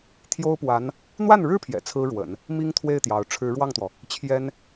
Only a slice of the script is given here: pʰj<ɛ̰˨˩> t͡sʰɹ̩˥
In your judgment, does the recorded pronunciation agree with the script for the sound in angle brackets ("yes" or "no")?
yes